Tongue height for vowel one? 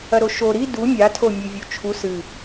low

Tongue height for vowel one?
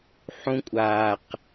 high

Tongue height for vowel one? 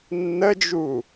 mid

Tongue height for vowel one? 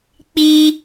high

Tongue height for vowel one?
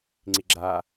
high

